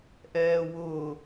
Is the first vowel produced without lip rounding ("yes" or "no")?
yes